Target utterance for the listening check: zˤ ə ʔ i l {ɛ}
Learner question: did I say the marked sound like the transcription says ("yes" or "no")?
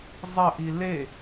no